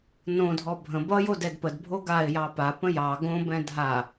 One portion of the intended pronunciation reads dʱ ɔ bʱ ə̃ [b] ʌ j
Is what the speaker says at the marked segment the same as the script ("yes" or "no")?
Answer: yes